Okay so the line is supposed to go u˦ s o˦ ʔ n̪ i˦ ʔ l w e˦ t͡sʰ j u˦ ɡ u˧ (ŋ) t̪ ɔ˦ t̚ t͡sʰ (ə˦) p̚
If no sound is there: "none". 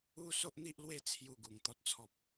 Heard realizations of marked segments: ŋ, ɔ˦

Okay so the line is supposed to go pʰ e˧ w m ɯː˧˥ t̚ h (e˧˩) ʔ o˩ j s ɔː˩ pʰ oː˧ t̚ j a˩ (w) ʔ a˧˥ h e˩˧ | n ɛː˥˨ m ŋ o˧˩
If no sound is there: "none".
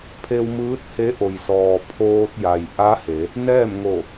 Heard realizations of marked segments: e˧˥, j

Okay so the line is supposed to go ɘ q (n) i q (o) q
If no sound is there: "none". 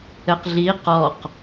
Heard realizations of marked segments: ɮ, ɔ

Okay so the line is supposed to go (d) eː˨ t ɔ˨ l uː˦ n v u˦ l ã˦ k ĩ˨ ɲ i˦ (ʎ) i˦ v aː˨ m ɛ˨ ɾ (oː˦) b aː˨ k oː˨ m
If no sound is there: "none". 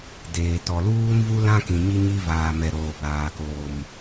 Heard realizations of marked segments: d, ɲ, oː˨

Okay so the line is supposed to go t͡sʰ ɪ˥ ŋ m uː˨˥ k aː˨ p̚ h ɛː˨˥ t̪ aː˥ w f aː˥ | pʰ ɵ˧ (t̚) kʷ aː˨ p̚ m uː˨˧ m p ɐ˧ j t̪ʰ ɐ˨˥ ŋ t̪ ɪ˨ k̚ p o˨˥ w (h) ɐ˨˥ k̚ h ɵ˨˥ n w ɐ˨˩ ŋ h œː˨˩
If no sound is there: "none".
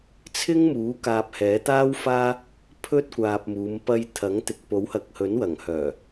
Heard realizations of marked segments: t̚, h

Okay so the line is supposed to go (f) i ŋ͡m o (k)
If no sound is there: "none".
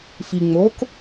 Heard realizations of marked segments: f, k

